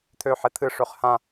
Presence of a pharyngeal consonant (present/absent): present